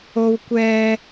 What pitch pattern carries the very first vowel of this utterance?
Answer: high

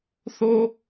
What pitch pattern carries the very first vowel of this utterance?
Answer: high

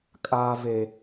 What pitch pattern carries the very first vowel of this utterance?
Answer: high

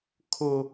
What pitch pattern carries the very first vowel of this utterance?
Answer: high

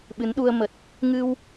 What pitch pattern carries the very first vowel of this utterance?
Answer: rising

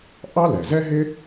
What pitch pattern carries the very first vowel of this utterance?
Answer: high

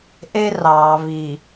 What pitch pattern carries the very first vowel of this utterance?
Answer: high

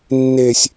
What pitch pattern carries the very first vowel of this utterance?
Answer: high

